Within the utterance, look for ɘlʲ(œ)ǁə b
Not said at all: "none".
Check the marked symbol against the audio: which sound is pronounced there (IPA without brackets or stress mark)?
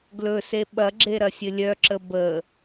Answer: œ